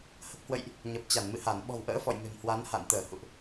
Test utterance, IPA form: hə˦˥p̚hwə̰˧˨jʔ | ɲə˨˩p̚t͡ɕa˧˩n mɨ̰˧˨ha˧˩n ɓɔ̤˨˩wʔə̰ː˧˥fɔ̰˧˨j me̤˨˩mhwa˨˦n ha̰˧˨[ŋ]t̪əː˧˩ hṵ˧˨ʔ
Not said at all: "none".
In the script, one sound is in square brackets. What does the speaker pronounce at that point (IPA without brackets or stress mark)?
n